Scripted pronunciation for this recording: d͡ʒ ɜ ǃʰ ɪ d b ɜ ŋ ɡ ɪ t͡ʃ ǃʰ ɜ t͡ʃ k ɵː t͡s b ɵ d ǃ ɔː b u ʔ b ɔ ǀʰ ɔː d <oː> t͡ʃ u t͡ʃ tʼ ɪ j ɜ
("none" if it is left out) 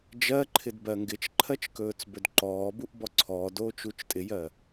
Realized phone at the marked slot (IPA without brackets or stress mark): oː